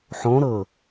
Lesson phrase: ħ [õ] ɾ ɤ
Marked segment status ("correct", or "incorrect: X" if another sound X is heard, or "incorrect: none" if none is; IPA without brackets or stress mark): correct